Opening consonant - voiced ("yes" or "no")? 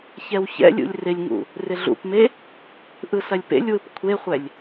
no